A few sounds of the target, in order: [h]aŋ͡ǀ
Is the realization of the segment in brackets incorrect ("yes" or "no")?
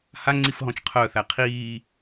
no